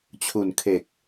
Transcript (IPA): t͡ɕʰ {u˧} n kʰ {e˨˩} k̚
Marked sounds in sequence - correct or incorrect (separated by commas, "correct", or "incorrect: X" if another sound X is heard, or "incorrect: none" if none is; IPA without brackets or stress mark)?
incorrect: u˨˩, correct